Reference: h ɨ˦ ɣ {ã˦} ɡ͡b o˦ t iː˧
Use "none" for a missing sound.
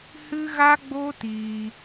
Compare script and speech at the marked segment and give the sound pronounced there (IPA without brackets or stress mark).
a˦